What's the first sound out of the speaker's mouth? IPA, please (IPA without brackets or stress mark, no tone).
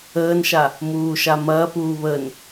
əː